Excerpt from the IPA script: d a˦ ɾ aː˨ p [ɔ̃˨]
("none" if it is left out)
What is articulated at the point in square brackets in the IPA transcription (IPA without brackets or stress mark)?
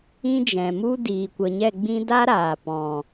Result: ɔ̃˨